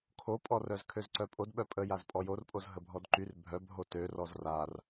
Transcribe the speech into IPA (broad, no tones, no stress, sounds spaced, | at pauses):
kʰ o pʼ ɔ r œ z kʰ ø z ǀ œ pʼ o d ɓ œ pʼ ə j a z pʼ ɔ j o r pʼ o z ɦ ə bʱ ɔ d ǃ y r bʱ œ b ɦ o t ø r ɔ z r a r